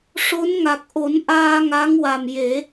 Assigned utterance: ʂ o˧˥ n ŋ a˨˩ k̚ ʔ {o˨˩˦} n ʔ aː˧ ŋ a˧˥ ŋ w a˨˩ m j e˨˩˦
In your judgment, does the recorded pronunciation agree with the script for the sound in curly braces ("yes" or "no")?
yes